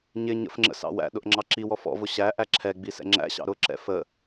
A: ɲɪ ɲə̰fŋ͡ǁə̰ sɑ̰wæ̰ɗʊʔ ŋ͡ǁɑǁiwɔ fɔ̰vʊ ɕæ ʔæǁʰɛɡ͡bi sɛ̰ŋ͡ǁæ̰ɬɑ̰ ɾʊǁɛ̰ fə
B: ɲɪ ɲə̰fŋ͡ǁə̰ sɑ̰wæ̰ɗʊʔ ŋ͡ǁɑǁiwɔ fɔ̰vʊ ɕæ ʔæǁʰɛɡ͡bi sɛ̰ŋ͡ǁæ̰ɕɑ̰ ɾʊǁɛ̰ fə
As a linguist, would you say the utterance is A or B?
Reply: B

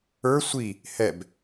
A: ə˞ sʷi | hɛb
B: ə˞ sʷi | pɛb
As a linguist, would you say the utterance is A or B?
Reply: A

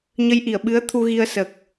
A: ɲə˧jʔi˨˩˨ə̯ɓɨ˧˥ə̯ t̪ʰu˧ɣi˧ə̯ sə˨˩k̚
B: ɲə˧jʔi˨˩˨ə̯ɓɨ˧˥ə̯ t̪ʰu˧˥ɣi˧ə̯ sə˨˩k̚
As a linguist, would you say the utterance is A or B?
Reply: A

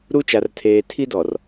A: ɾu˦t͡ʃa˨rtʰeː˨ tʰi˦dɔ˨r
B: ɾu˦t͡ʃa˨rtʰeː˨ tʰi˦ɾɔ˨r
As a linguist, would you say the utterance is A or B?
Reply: A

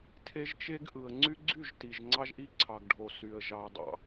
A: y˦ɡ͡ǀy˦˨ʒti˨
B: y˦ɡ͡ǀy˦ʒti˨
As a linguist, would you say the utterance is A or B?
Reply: A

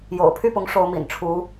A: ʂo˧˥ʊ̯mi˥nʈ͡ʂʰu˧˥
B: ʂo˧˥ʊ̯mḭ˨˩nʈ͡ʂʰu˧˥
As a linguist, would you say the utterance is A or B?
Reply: B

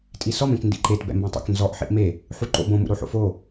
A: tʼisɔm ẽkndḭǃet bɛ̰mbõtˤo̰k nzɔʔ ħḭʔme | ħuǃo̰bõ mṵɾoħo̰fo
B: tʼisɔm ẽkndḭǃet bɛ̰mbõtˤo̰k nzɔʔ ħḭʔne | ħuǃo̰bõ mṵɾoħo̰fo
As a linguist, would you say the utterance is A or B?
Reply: A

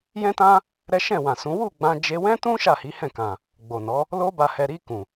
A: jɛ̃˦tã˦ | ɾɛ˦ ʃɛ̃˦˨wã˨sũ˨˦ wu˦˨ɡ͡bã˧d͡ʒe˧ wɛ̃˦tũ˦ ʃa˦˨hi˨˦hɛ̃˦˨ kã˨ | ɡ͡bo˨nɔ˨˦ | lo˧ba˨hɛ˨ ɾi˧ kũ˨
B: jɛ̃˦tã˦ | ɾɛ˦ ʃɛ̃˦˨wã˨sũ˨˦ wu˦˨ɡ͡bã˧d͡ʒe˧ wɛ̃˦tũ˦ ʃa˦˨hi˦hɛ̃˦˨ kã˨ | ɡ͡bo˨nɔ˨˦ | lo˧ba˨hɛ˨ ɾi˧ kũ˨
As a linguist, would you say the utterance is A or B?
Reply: A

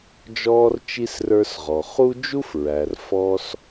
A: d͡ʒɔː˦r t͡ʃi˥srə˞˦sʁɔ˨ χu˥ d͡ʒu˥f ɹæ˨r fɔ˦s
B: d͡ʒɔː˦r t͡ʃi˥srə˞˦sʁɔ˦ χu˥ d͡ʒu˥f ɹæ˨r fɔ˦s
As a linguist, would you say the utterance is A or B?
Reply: A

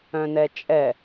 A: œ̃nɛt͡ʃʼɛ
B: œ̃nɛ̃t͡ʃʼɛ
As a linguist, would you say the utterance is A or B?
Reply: A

